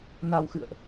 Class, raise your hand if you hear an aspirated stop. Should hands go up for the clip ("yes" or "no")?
no